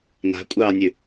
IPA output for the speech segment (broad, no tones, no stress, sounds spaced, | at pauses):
n a̤ kʷʼ ɑː nʲ ʉ